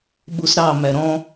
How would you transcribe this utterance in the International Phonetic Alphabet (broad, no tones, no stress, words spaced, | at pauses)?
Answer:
ɓusɾɑ mæɾɔ̃